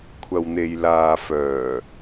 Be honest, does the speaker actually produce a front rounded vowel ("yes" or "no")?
yes